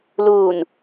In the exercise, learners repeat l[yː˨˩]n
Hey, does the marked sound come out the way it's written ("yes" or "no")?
no